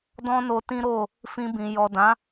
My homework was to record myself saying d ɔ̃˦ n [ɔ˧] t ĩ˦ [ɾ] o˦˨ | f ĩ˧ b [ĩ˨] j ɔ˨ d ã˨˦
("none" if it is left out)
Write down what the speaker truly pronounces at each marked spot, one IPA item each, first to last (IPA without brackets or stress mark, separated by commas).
o˧, ɾ, ĩ˨